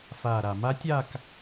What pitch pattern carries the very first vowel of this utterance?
low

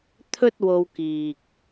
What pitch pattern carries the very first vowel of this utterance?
high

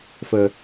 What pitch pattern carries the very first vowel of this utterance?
low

